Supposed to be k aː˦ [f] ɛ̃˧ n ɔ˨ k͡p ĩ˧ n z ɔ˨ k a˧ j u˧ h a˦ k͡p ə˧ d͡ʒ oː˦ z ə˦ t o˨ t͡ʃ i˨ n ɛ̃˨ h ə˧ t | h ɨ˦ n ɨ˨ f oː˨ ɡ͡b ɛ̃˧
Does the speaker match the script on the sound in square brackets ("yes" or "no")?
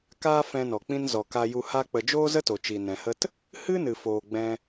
yes